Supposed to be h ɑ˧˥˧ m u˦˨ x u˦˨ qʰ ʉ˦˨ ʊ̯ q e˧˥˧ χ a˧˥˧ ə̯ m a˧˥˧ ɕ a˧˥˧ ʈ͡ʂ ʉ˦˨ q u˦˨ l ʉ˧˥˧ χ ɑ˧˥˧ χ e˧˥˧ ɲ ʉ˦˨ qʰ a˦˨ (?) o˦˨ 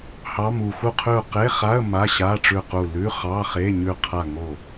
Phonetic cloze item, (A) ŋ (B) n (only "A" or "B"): A